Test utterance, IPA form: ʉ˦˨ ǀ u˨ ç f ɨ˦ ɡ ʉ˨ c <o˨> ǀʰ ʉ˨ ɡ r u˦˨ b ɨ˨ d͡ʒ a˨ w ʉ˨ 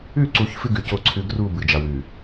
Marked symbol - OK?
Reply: yes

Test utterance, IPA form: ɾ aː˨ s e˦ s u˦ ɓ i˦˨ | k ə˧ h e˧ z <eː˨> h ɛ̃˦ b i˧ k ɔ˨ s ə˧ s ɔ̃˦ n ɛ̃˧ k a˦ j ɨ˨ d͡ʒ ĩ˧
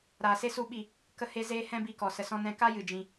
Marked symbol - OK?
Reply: no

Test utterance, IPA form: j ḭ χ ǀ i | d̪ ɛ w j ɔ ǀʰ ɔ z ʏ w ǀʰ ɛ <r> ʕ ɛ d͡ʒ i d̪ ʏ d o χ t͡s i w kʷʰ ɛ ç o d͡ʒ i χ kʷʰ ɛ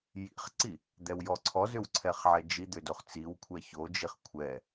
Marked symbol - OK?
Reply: no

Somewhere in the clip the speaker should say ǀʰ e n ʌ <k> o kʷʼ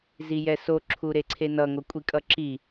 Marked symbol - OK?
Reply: no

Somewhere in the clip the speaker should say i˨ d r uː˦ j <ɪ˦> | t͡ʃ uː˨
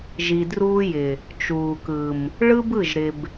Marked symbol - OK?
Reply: no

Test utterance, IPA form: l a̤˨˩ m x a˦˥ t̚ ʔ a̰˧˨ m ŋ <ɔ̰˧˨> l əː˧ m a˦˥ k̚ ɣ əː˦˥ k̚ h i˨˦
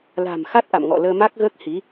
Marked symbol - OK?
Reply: yes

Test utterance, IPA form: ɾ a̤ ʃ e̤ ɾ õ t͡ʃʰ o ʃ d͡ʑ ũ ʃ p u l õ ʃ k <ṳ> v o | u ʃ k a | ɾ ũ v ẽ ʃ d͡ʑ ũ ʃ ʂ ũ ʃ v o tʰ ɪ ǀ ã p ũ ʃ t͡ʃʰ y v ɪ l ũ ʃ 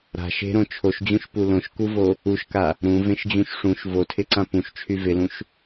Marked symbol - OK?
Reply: no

